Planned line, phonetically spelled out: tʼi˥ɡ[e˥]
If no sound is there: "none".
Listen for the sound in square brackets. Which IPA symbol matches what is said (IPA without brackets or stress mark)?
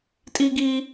i˥